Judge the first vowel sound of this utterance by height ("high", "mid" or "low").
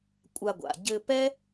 low